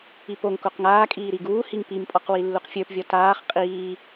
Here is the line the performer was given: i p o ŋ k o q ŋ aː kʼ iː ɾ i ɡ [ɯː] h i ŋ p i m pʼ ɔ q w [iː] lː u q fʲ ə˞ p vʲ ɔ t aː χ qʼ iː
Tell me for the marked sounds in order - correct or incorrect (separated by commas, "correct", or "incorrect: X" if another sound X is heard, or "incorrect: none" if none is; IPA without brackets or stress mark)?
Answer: incorrect: uː, incorrect: i